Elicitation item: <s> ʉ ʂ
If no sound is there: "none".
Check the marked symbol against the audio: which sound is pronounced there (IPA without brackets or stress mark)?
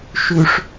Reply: ʃ